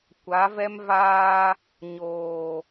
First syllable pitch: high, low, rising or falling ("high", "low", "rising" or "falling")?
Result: rising